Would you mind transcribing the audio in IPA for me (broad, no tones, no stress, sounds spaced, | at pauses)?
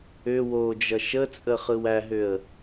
ʏ w o d͡ʒ ʌ ʃ ə t͡sʼ ə χ ɯ w æ ɦ ʏ ə̯